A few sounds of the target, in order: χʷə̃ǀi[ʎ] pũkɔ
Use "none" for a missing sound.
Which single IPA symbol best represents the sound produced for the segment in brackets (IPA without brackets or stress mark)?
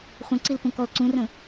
l